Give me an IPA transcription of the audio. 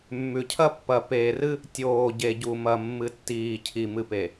mː ʉ˨ cʰ ɐ˦ pː ɐ˨ p eː˨ r ɨ˦ | tʲ oː˨ ɟ e˨ ɟ u˨ m ɐ˨ mː ɨ˨ tː iː˨ cʰ i˨ m ɨ˨ p e˨

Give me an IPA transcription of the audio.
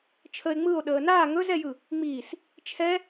t͡ʃʰ ə e̯ ŋ͡m ɯ o̯ ɗ əː n aː ŋ ɵ z ɛ j ɯ | ŋ͡m iː s | t͡ʃʰ ɛ

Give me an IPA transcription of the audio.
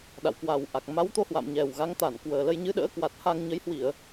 ɗ a̰˧˨ w k w a˨˩ w ʔ a˨˩ k̚ m a˨˦ w t̪ o˧ h w a̰˧˨ m ɲ ɛ˨˩ w ɣ a˨˦ ŋ t̪ a˧˩ n k w əː˨˩ l ə˧ j ɲ ɨ˨˦ ɗ ə̰ː˧˥ k w a˨˩ t̚ h a˧ ŋ ɲ ə˨˦ j h w i˧˩˨ ə̯

